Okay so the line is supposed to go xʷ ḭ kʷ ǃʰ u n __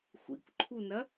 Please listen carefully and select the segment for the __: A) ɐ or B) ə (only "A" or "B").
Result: A